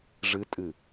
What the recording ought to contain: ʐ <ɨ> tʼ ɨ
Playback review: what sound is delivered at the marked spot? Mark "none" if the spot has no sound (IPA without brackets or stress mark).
ɨ